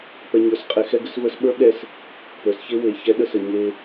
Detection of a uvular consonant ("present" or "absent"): present